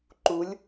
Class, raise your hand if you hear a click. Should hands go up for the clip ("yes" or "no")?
yes